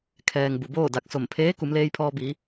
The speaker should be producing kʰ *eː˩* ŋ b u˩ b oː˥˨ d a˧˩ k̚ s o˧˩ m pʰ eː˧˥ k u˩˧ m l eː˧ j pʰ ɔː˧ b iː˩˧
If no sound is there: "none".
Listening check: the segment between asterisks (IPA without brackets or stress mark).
ɛː˩